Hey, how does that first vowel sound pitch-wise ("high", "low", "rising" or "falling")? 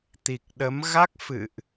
low